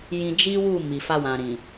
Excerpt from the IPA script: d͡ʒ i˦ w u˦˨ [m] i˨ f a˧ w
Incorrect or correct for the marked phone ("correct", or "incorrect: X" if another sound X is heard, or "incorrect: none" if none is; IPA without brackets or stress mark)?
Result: correct